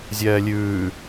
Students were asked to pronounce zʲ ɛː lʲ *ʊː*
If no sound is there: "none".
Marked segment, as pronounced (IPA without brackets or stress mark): ʉː